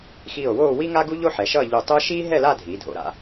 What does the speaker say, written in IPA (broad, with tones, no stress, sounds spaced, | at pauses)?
x iː˧˩ o̯ w oː˥˧ w i˥ ŋ a˥ ɡ u˥ ʎ o˥ ħ ɛ˩˧ ʃ ʌː˥˧ ʎ u˧˩ tˤ ɯ˥ ʃ iː˥ ɦ ɛ˥˧ l a˥˧ dʱ iː˩˧ dʱ o̰˩˧ ɾ a̰˩˧